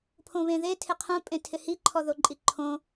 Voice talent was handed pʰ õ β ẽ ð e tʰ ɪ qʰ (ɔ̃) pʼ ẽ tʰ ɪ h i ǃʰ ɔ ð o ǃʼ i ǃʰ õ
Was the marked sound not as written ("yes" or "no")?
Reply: yes